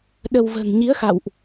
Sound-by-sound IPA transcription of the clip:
ɗ ə˧ w v ə̤ː˨˩ ŋ ɲ i˨˦ ə̯ x a̰˧˨ w ʔ

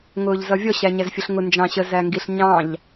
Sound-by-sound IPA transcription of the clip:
ŋ ʊː ʎ z ʌ vʲ ɔ ɕ æ ɲ æ z fʲ ʊ ɬ ŋ ʊ n d͡ʒ ɑ̃ ɕ ə z æ ŋ ɡ i ɬ ɲ ɑ̃ ʎ

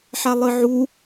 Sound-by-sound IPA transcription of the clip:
ħ a lˠ ɨ ʕ u

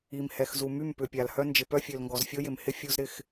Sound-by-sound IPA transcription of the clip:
i˨ m h ɛ˨ x z u˨ m y˦˨ m p ʏ˨ pʲ a˨ l h œ˦ n d͡ʒ ɪ˨ p œ˦ fʲ ø˨ l ŋ ɡ ɔ˨ z fʲ o˦ j ɪ˨ m h ɪ˦ fʲ u˦ z ɾ ɪ˦ x

